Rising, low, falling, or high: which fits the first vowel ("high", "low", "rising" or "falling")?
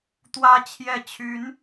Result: high